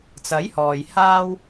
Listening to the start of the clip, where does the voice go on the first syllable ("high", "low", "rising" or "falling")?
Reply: rising